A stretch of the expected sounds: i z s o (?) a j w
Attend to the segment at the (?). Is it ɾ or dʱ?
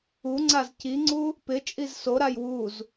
ɾ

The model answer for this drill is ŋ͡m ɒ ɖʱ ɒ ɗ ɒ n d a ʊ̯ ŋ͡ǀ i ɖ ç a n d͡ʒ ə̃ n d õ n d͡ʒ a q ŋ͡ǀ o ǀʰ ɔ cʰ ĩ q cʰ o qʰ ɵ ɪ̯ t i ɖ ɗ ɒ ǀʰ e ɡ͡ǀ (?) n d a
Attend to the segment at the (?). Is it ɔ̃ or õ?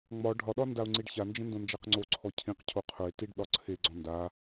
ɔ̃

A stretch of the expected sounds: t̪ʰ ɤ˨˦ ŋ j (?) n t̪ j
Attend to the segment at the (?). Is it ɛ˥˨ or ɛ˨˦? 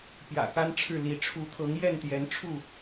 ɛ˥˨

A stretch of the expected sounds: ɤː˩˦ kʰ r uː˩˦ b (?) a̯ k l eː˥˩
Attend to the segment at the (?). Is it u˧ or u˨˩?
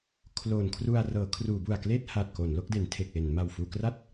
u˨˩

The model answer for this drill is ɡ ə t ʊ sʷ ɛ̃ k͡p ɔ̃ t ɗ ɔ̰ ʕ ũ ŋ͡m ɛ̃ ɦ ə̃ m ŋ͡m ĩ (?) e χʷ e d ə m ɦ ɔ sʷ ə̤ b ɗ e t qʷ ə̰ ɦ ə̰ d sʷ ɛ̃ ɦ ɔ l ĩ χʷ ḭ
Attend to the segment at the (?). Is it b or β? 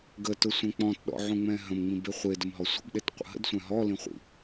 b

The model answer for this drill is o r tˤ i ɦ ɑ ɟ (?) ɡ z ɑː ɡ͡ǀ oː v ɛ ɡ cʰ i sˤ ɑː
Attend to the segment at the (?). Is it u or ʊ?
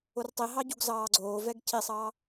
u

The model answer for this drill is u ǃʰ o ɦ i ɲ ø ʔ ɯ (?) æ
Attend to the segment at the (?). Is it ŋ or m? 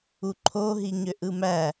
m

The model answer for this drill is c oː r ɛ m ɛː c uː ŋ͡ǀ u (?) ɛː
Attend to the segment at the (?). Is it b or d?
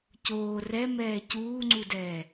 d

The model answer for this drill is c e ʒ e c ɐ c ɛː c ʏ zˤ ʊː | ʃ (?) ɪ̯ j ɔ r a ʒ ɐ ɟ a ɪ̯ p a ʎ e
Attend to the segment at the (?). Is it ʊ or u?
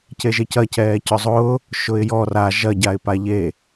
ʊ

